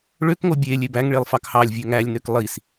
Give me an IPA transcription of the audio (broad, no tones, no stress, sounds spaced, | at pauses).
ɭ ø k ŋ o bʲ e lʲ e b æ ŋ ɭ e lˠ f ɑ k h ɑ lʲ vʲ ø ŋ æ lʲ n ø k lˠ i s